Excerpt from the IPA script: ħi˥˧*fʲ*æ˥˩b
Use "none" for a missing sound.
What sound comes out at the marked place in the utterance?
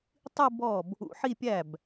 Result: pʲ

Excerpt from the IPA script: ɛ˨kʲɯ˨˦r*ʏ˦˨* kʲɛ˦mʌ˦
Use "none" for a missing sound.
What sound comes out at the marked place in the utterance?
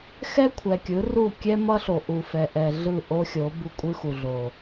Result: u˦˨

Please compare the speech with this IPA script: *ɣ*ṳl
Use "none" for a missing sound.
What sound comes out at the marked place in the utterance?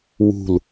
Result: w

